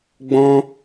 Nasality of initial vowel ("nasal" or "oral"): nasal